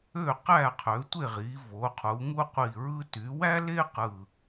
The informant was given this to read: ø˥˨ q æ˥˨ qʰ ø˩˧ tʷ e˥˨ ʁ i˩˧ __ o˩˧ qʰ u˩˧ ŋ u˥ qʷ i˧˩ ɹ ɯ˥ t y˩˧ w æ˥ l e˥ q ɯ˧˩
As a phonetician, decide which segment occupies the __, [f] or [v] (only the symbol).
v